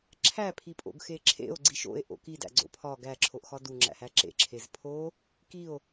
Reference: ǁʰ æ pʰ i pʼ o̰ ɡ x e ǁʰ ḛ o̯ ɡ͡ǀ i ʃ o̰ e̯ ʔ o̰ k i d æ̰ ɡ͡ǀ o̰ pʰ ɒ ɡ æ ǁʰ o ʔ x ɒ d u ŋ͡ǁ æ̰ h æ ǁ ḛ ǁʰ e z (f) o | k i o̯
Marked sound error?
yes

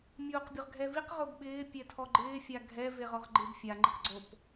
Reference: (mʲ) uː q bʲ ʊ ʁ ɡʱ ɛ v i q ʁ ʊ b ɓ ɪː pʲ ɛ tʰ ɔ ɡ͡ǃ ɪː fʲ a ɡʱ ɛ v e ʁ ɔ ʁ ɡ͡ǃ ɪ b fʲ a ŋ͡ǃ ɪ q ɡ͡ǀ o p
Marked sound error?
no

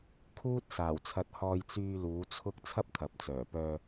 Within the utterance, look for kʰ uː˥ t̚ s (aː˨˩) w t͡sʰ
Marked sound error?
no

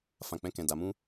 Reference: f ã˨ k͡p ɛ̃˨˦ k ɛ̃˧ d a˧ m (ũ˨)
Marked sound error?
yes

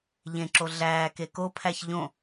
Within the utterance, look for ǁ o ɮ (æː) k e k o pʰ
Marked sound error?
no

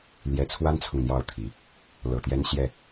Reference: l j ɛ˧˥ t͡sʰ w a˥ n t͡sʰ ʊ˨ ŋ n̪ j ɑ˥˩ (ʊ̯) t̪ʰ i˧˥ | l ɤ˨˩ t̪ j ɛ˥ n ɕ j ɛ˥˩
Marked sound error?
no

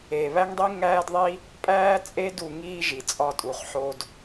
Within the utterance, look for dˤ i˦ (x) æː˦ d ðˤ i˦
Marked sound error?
yes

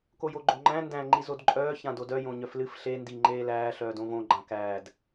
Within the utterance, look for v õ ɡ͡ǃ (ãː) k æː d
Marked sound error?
yes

